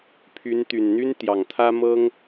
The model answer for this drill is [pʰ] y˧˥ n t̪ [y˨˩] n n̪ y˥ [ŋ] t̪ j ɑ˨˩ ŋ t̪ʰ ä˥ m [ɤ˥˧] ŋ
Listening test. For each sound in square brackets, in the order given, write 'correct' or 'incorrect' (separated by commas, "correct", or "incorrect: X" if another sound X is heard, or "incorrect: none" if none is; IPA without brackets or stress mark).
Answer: correct, correct, incorrect: n, incorrect: ɤ˥